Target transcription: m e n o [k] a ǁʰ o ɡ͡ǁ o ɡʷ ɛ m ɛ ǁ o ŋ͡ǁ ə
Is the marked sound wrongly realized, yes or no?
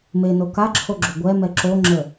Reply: no